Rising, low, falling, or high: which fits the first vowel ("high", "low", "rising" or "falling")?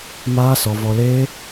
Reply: high